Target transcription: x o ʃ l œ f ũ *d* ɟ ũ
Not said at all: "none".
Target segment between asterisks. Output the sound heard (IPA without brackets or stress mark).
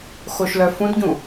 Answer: d